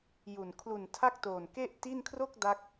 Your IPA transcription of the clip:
j u˨˩ n kʰ l u˨˩ n tʰ a˥˩ k̚ t oː˨˩ n k e˥˩ ʔ t i˥˩ n kʰ r o˥˩ k̚ d a˦˥ k̚

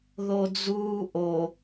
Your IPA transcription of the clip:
ð o d͡z uː ʔ o

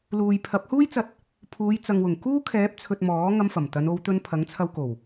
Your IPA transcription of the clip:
l uː˨ j pʰ ɐ˨˥ p̚ h uː˥ j t͡s ɐ˧ t̚ | pʰ uː˨˧ j t͡s ɐ˨ ŋ w ʊ˨˩ ŋ k uː˥ kʰ ɛː˨˥ p̚ t͡sʰ ɵ˨ t̚ m ɔː˨˥ ŋ ɐ˧ m f ɐ˨˩ m t̪ ɐ˨˧ n o˨˧ w t̪ ɵ˧ n pʰ ɐ˨˥ ŋ t͡sʰ ɐ˧ w k o˨˩ w

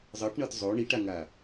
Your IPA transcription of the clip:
zˤ ɤ ʈ ɳ ɤ t zˤ o ɳ i ʈ a ŋ a

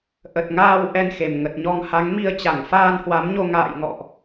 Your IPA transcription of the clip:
ʔ ə˨˩ t̚ ŋ aː˧ w ʔ ɛ˧ n x e˨˩ m ŋ ə˨˩ t̚ ɲ ɔ˧ ŋ h a˨˦ ŋ m i˧ ə̯ t͡ɕ a˧˩ ŋ f aː˧ n h w a˨˦ m ɲ o˧ ŋ a̰ː˧˨ j ŋ ɔ̰˧˨ ʔ

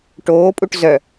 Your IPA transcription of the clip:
ʈ oː pʼ u ʈ z œ

